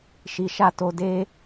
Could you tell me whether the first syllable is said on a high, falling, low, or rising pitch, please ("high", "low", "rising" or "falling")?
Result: low